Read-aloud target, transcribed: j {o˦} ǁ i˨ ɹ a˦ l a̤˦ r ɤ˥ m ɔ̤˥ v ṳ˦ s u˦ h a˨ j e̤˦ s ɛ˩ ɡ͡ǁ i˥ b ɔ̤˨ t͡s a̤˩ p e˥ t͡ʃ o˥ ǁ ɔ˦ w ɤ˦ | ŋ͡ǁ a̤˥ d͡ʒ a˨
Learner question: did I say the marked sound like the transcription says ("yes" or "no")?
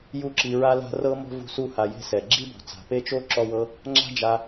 no